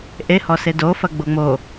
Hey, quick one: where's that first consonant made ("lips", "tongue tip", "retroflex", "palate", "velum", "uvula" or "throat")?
throat